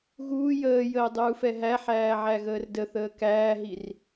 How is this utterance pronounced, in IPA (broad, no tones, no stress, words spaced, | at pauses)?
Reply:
ɣuː jəːjəː dˤuːfɛɦæħæː ʕæɣəːrdəθəː kæːɦir